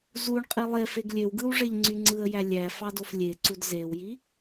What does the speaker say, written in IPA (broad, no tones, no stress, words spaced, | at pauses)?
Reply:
zuɳqʼi lˠefeɡ lʲøw ɡɯwʐeʎ ŋ͡ǀyŋ͡ǀɯə̯jæ lʲæ fɑdoflʲeǀud zewji